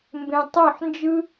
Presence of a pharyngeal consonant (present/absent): present